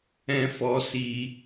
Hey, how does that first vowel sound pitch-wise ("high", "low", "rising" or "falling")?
high